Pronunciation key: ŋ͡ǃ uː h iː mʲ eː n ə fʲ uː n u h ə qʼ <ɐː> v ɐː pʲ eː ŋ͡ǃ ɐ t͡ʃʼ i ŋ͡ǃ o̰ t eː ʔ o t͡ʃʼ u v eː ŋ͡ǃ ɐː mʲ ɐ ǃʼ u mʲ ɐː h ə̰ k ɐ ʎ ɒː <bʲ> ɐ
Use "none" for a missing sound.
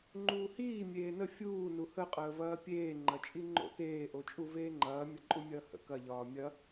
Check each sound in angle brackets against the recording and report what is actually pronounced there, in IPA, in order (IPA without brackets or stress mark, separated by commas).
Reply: əː, mʲ